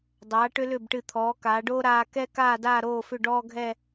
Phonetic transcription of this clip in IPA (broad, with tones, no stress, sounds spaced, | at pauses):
dˤ aː˩˧ ʈ ʏ˧ l ʏ˧˩ b ʈ ɨ˧˩ t̪ʰ ɔː˩˧ k aː˩˧ ɖ oː˥ ɾ aː˧ k ɛ˥ k aː˥˧ d aː˥˧ ɾ oː˥˧ f ʏ˥˧ ɖ ɔː˥ ɡʱ ɛ˥˧